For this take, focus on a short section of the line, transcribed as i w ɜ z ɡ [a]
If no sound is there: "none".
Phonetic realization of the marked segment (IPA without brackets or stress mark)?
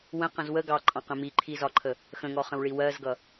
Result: ʌ